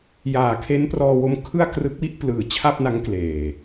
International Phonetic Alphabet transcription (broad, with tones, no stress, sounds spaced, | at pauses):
j aː˨˩ kʰ e˦˥ n p r ɔː˧ w o˧ m kʰ ɯ˥˩ a̯ k r ɯ˦˥ k̚ w i˥˩ ʔ p l ɯː˩˦ t͡ɕʰ a˥˩ p̚ n a˦˥ ŋ k l eː˨˩